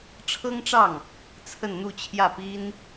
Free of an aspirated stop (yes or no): no